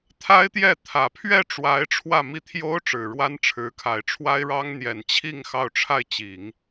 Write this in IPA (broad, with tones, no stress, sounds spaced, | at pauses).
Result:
t̪ʰ a˥ ɪ̯ t̪ j ɛ˥˩ t̪ʰ ä˨˩ pʰ ɥ ɛ˥˩ ʈ͡ʂ w a˧˥ ɪ̯ ʈ͡ʂʰ w ä˥˧ m i˥˩ t̪ʰ j o˥ ʊ̯ ʈ͡ʂ ɻ̩˨˩ ɻ w a˥ n ʈ͡ʂʰ ɻ̩˧˥ kʰ a˨˩ ɪ̯ ʈ͡ʂʰ w a˥ ɪ̯ ɻ ɑ˥ ŋ n̪ j ɛ˨˩ n t͡ɕʰ i˥˧ ŋ x ɑ˥˧ ʊ̯ ʈ͡ʂʰ a˥˩ ɪ̯ t͡ɕ i˨˩˦ ŋ